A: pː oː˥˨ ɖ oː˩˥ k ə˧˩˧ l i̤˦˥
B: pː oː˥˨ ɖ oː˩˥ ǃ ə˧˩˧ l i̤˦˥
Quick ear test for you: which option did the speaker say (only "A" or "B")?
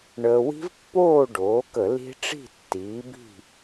A